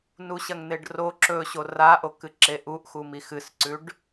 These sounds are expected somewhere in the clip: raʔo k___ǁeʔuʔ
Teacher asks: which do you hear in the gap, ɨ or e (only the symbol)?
ɨ